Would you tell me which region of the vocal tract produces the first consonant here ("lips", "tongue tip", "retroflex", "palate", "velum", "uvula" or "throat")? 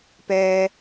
lips